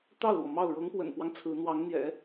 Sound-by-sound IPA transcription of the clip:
t̪ ɑ˥˩ ʊ̯ l w ɔ˩ m ɑ˥˩ ʊ̯ ɻ ɤ˧˥ ŋ p w ə̰˨˩ n p w ɑ˦ ŋ t͡sʰ ɹ̩˧˥ n̪ w ɑ˧˥ ŋ n̪ j ɛ̰˨˩˦

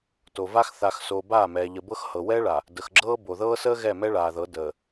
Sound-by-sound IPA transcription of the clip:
t o˨ v a˦ x θ a˨ x s o˨ b aː˦˨ m ɛː˨ ʎ ə˨ b ɤ˦ x h ɤ˨ w ɛː˦ ɭ a˨ | d ə˨ x ɡ͡ǁ ɤː˦ b o˨ ð ɤː˦ s əː˦ ɣ ɛ˦˨ m ɛ˦ ɭ aː˨ ð ɤ˨˦ d əː˨

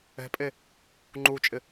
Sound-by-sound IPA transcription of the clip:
ɛ̤ pʼ e | ŋ͡ǃ u t͡ʃʼ ɪ

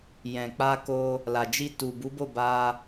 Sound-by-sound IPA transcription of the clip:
j ɛ̃˨ k͡p a˧ k o˧ | l a˨ d͡ʒ i˧ t u˨ b u˨˦ b o˦˨ b a˧

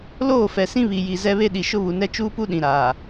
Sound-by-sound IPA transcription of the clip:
l oː˦˨ f ɛ˨ s ĩ˦ β i˨ j i˨ z ɛ˦ β e˦ ɗ i˨ ʃ ʊ˦ β u˨ n ɛ˦ t͡ʃ uː˦ p u˦ ɗ ĩ˨ ɾ aː˨

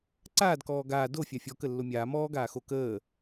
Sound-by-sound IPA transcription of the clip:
ǀ aː d k ɔː ɡ aː d o fʲ a fʲ ɔ k ə lː o mʲ aː m ɔː ɡ aː x o k əː

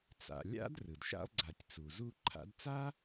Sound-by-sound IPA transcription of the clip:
t͡s a̰˨ lʲ a̰˥ d r ɯ˩ d ʃ a̰˥ lˠ ɡ͡ǀ a˨ tʲ t͡s u˩ z u˦ ǃʰ a̰˦ d t͡s a˥

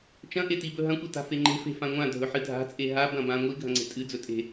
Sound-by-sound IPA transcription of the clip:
t͡ʃ ɐ̃ ʔ e t i b ɵ ɦ ɐ̃ kʷ e t a̤ f e ŋ͡ǃ e̤ f e̤ f ã ŋʷ ã dʱ ɵ ħ ɨ dʱ a̤ t͡sʼ e ɦ a b ɐ̃ b ã ŋʷ i ɡʱ ɐ̃ ŋ͡ǀ e̤ tʼ ɨ d͡z ɵ tʼ e̤

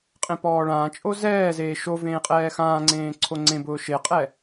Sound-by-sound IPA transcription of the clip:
qʼ ẽ p ɔː ɭ ãː t͡ʃʼ o z ɛː z eː ʃ o v ẽː qʼ ɛː x ãː ŋ͡ǀ ẽː ǀʰ o ŋ͡ǀ ẽ b ʊː ʃ e qʼ ɛ

